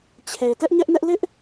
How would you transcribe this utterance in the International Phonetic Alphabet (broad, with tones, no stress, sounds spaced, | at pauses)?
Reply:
t͡ɕʰ e˨ t ɛ˦ ʔ ɲ ɛ˦ ʔ n ɛ˦ ʔ l ɪ˦ ʔ